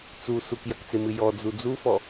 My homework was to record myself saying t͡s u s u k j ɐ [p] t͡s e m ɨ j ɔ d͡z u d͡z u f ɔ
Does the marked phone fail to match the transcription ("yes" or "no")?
yes